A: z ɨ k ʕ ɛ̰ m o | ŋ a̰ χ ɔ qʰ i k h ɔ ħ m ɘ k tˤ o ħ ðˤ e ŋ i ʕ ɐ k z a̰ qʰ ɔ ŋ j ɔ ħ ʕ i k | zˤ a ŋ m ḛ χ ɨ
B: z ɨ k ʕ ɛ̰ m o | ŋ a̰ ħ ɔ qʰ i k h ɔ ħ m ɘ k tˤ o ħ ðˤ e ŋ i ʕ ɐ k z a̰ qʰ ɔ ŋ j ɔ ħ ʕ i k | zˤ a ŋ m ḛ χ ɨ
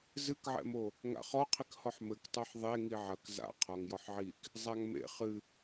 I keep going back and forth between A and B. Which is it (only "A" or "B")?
A